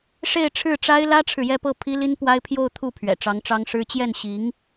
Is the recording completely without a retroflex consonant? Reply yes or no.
no